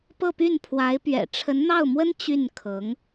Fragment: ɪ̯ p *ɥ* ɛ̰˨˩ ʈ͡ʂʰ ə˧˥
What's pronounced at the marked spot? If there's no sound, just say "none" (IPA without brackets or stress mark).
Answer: ɥ